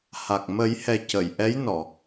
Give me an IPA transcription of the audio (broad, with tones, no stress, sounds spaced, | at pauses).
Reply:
h a˨˩ k̚ m ə˨˩˦ j h ɛ˨˩ c ə˨˩˨ j ʔ ɛ˧˥ j n ɔ˨˩˨